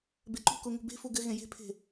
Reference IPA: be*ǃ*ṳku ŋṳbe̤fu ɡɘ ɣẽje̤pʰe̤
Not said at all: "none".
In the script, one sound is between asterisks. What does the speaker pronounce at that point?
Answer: ǃ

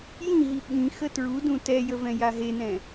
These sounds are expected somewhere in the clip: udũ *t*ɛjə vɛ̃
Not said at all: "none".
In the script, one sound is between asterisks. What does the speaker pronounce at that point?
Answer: t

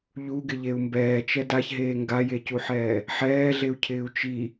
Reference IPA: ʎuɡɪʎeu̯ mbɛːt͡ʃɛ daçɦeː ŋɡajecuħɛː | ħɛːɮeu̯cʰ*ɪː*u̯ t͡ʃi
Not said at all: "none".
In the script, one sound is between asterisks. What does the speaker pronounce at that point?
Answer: ɪː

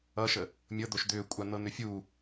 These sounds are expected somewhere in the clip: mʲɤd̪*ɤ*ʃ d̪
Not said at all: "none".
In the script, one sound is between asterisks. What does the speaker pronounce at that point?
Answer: o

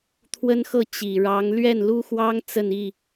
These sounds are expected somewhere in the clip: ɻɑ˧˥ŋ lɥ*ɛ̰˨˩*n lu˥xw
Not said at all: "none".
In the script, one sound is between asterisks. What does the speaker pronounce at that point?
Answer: ɛ˥˩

